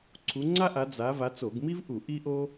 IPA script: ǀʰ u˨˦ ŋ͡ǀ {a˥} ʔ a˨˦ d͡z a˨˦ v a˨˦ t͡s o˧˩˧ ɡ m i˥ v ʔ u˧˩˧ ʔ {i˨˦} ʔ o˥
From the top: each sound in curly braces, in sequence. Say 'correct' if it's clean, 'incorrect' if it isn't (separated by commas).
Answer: correct, incorrect